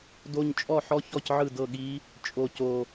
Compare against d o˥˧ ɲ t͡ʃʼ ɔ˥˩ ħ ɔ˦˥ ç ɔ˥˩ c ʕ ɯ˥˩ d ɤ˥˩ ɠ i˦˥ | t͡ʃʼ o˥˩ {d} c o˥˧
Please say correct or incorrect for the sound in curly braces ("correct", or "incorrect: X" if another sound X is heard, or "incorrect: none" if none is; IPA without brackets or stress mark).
incorrect: none